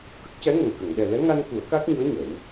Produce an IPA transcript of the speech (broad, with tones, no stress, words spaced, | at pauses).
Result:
kə˦˥k̚cɛ˧˥ŋə˨˩ŋkə˨˩˨ŋ ɗɛ˨˩lɛ˧˥ŋa˧n ku˨˩˦ə̯ka˦˥k̚ɲu˧˥ə̯ ɲə˨˩˦w